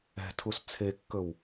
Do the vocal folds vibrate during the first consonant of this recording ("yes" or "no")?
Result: no